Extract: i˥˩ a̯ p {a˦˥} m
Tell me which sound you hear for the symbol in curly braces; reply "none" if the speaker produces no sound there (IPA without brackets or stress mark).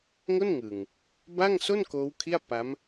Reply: a˦˥